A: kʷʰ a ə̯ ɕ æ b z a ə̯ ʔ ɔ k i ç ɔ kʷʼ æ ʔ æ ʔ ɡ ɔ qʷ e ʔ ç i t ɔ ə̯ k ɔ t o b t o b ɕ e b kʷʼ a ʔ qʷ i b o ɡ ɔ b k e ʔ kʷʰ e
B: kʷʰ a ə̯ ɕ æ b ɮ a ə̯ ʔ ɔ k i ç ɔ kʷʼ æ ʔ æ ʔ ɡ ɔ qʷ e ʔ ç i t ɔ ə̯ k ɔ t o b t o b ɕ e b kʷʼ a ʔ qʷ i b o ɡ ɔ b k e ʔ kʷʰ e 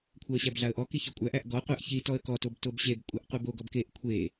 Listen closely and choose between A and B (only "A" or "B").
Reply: B